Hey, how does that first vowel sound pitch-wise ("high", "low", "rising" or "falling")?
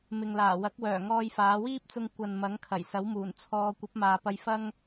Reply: low